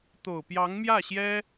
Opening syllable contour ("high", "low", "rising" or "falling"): low